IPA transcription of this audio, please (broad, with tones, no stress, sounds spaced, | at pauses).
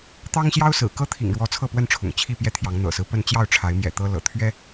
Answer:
t̪ ɑ˦ ŋ ɕ j ɑ˦ ʊ̯ s ɹ̩˨˩ k ɤ˦ t̪ʰ ḭ˨˩ ŋ ɻ w ɔ˨˦ t͡sʰ ɤ˥˨ p w ə˥˨ n ʈ͡ʂʰ ʊ̰˨˩ ŋ t͡ɕʰ i˥˨ p j ɛ˥˨ t̪ʰ j ɑ˨˦ ŋ n̪ ɤ̰˨˩ s ɹ̩˦ p ə˥˨ n t͡ɕ j ɑ˥˨ ʊ̯ ʈ͡ʂʰ a˨˦ ɪ̯ m j ɛ̰˨˩ t̪ ɤ˦ l ɤ̰˨˩ t̪ʰ ɥ ɛ˦